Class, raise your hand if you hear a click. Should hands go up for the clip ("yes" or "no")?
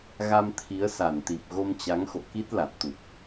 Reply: no